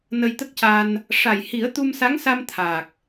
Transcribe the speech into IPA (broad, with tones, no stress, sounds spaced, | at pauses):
n ə˧ j t̪ ə˦˥ k̚ c a˧ n | ʂ a˨˩ j h i˨˩˦ ə̯ t̪ u˧ m s a˧˥ ŋ s a˧ m t̪ʰ a˨˩ k̚